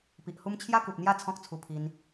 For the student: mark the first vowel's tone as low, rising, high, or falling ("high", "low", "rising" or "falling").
low